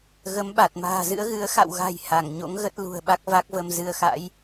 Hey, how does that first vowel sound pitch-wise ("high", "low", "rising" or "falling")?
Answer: rising